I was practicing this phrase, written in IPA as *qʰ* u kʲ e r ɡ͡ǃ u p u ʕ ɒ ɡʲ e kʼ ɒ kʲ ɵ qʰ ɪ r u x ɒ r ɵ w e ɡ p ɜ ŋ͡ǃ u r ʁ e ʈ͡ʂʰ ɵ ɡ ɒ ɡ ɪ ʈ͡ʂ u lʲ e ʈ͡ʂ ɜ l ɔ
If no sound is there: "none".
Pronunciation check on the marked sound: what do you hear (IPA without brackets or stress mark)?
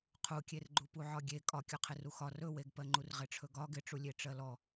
qʰ